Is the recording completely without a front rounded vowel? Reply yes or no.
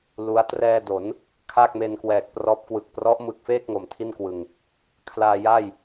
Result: yes